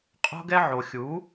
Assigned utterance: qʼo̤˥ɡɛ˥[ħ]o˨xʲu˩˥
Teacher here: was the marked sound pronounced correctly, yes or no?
no